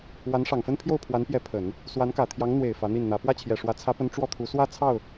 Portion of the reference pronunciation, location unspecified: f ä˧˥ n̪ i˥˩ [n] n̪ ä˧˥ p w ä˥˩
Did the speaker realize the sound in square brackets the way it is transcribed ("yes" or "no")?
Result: yes